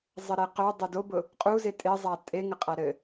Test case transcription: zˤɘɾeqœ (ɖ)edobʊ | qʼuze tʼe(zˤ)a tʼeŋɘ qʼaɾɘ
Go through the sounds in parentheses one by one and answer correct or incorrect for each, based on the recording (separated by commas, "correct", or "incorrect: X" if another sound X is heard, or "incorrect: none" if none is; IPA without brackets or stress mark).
incorrect: dˤ, correct